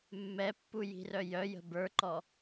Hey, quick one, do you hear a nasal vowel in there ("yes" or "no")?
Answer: no